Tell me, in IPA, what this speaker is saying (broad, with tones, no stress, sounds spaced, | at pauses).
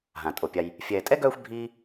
ɦ ã˩ tʼ o˩ pʲ a˨ j | fʲ ɛː˨ tʼ ɛ˥ ɡ œː˦ xʷ bʱ iː˦